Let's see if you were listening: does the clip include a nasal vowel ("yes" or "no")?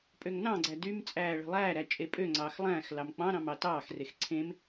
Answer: yes